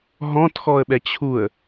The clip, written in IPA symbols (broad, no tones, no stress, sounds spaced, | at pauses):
ɦ ɔ̃ t x ɔ ə̯ ɓ ɛ t͡ɕʰ u ə̯